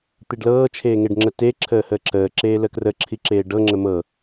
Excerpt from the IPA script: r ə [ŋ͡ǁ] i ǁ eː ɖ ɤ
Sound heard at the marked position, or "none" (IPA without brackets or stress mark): ǁʰ